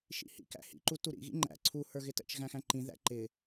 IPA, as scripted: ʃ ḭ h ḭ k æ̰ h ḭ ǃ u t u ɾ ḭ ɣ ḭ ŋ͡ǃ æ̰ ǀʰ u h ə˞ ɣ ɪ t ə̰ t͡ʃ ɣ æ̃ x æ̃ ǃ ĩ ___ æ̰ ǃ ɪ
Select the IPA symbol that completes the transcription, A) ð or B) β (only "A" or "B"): A